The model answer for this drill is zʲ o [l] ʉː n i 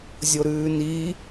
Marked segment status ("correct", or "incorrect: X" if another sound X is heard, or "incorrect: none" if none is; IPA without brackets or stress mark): incorrect: ɾ